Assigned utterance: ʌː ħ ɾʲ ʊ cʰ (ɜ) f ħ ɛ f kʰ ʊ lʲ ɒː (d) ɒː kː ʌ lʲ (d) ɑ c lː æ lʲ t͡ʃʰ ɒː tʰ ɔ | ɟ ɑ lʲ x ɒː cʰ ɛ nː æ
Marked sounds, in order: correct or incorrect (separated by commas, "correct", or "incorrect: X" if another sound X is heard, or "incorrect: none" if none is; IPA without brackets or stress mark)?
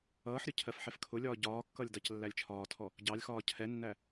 correct, incorrect: ɟ, correct